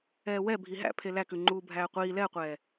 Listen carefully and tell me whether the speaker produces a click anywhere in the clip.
yes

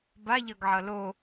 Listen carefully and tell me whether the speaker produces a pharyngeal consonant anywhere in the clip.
yes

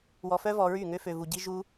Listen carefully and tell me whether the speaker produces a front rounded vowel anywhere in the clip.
yes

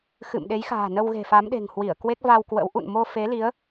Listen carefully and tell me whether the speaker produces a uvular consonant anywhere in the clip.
no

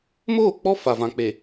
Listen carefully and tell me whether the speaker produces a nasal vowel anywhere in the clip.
yes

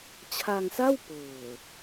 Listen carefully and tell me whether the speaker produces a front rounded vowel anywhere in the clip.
no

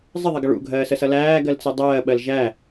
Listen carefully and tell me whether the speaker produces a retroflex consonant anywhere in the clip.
yes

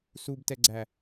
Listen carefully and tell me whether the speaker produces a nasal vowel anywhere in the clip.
no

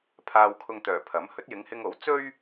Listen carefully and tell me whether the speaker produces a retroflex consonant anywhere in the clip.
no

